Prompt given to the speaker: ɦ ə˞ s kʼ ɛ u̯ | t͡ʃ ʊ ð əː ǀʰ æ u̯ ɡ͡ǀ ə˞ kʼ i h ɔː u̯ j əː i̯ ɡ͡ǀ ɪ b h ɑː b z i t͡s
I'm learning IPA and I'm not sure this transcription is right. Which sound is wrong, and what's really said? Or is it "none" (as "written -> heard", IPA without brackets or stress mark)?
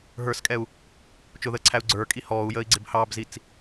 none